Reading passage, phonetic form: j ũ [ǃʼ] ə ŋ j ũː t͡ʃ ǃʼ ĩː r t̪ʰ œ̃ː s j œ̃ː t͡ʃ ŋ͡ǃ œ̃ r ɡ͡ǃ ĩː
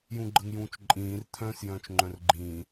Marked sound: incorrect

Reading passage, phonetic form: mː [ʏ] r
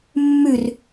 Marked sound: incorrect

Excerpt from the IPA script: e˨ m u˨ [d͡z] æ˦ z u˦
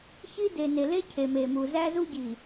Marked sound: incorrect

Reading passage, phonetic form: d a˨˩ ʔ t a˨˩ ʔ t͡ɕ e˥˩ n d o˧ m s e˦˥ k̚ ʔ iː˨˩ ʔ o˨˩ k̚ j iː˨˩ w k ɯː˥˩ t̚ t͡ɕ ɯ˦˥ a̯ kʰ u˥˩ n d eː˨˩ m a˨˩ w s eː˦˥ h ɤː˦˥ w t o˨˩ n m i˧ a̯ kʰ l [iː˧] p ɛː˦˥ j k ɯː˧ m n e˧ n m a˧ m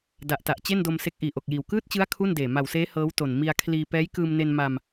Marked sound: correct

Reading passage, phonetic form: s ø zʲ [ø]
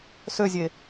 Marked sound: incorrect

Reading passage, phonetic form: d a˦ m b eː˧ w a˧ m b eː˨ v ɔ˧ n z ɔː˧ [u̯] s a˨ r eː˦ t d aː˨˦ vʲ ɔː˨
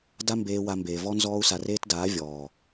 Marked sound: correct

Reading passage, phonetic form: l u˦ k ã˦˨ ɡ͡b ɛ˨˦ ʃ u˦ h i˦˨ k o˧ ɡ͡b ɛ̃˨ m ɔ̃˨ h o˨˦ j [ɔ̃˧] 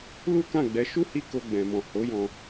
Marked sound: correct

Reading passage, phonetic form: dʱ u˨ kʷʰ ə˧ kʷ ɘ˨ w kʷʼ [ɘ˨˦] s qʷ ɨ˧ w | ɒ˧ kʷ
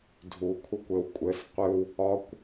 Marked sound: correct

